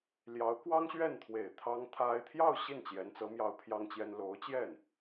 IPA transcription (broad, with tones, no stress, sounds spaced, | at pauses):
l j ɑ˧˥ ʊ̯ k w ɑ˥ ŋ ɕ ɥ ɛ˥˩ n t̪ʰ w e˨˩ ɪ̯ t̪ʰ ɑ˥ ŋ t̪ʰ a˥ ɪ̯ t̪ʰ j ɑ˥˧ ʊ̯ ɕ i˥˩ n t͡ɕ j ɛ˧˥ n t͡s ɤ˧˥ m j ɑ˥ ʊ̯ pʰ j ɑ˥ ŋ t͡ɕ j ɛ˥ n l o˧˥ ʊ̯ t͡ɕ j ɛ˥˩ n